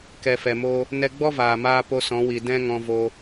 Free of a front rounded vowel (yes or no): yes